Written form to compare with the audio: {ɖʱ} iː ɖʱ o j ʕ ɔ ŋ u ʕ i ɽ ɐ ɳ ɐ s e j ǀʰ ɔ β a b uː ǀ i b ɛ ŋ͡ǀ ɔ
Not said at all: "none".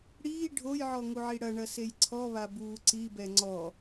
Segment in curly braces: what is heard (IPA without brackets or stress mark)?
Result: ɽ